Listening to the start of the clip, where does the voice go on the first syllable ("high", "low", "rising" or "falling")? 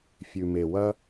low